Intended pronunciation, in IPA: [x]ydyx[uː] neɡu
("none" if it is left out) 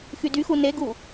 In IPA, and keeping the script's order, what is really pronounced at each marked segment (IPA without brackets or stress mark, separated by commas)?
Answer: x, u